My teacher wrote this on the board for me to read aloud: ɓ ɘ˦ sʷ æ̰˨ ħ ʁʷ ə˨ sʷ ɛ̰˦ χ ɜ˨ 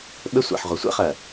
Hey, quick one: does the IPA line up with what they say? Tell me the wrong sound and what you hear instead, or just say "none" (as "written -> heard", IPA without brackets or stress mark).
none